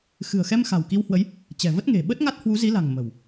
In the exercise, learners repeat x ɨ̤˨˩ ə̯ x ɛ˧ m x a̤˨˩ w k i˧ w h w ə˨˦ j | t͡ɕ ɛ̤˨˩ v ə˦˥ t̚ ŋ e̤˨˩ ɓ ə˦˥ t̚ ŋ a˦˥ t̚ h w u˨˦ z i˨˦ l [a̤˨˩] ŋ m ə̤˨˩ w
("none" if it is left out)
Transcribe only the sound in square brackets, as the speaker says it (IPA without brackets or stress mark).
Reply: a̤˨˩